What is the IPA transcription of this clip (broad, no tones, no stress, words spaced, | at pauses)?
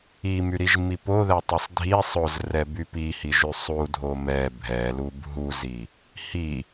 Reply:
imyɾiʒmi poðɛtˤɛsˤ dʱi sˤozrɛby pihiʒy sˤudʱo mɛ bʱɛlub ɦuzi | hi